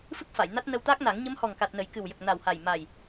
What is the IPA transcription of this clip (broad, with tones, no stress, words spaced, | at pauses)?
fɨ˦˥k̚fa˨˩˨jna˦˥t̚ nə˧wt̪aː˦˥k̚na˨˩˦ŋ ɲə˧˥mhɔ˨˩ŋka˨˩t̚nə˨˩˨j kɨ˨˩wjə˨˩k̚ na˨˩wha˨˩jma˨˩j